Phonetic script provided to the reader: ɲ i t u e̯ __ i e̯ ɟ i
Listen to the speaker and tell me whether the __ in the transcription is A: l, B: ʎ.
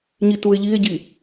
B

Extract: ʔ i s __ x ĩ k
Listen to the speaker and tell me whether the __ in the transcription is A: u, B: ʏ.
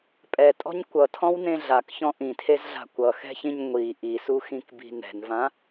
A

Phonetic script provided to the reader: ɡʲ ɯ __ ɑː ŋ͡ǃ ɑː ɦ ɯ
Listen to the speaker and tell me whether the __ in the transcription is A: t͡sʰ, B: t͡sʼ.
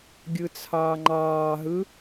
A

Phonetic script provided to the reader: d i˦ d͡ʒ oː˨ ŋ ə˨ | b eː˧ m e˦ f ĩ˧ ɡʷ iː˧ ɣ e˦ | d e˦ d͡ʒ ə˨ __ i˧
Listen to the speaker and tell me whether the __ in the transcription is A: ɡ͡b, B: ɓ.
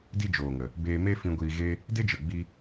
A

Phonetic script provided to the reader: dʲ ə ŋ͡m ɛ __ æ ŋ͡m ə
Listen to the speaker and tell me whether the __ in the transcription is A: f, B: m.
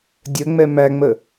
B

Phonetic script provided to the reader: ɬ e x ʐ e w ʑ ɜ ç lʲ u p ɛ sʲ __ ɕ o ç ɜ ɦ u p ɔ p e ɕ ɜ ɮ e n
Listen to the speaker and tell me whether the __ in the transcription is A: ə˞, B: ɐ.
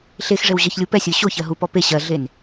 A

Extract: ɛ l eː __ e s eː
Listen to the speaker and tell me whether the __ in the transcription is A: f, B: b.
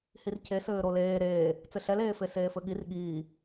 A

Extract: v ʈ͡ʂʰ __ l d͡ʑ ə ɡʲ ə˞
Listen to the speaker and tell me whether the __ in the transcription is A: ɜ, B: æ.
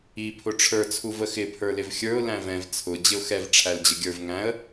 B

